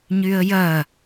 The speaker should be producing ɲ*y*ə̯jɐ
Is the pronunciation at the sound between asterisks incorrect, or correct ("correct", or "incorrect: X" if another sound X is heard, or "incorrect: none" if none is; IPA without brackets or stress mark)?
correct